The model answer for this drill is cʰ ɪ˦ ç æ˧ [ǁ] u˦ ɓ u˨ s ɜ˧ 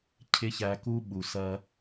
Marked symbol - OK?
no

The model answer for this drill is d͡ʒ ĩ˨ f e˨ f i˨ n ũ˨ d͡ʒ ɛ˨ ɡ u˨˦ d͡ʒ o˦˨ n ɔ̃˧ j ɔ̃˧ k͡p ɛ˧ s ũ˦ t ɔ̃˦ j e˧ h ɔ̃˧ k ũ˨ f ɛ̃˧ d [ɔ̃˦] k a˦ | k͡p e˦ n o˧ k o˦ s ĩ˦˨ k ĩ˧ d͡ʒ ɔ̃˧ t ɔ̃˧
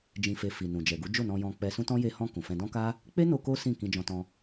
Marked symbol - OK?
yes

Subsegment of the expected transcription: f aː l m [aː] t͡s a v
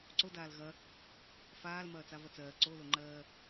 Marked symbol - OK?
no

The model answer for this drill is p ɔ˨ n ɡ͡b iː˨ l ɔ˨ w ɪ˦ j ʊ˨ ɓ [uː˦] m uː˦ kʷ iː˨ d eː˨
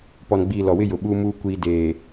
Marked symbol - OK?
yes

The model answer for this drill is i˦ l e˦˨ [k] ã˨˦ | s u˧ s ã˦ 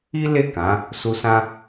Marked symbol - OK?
yes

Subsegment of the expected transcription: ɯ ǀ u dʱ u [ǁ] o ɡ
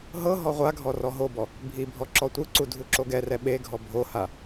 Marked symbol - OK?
yes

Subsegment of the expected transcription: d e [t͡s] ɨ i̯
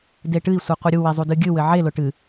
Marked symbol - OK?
no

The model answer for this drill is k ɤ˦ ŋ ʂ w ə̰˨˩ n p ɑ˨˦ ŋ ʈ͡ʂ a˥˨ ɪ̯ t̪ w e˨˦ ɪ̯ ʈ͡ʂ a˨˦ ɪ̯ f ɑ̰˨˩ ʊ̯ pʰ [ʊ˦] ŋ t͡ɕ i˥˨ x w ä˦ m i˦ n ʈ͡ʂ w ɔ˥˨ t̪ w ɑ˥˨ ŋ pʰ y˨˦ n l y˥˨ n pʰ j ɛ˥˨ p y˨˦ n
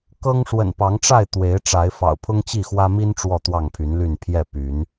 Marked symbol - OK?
yes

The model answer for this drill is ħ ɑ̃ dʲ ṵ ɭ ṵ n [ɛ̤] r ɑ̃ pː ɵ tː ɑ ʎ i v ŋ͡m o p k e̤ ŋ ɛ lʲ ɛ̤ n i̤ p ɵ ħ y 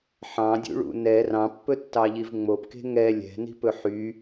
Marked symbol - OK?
no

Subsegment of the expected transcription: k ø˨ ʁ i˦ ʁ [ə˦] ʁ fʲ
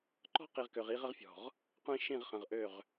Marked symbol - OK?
yes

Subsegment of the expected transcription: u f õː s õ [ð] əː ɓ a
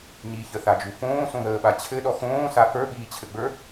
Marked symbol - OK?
yes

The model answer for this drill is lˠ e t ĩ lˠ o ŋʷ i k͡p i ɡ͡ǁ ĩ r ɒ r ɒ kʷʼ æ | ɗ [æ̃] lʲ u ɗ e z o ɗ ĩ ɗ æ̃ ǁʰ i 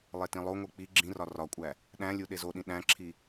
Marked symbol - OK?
yes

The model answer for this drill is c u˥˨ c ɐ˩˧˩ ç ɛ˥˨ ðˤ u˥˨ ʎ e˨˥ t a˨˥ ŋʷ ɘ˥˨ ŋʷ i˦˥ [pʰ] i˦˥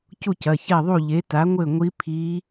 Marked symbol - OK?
yes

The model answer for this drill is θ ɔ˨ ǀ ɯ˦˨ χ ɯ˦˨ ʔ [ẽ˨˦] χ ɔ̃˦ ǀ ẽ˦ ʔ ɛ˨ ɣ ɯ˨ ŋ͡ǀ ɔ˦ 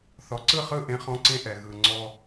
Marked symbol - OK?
no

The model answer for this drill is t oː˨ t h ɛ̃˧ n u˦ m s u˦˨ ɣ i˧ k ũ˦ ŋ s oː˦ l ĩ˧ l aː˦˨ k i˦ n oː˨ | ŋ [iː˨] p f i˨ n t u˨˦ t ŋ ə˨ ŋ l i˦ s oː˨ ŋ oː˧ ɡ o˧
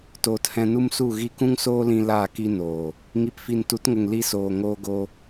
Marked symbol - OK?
no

